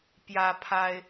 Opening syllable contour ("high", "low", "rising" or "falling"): high